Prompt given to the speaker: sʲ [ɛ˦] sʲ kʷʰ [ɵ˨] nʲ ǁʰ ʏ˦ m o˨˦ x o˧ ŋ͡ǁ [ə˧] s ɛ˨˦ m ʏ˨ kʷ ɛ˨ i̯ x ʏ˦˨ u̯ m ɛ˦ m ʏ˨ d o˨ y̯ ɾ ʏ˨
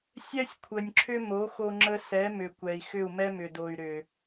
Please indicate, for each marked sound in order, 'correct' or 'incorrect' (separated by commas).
correct, incorrect, correct